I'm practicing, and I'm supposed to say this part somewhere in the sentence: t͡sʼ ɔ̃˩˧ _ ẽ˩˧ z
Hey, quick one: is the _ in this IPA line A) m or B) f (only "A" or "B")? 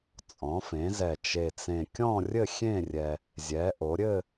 B